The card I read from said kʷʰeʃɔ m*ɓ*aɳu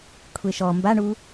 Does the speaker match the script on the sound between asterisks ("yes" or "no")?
no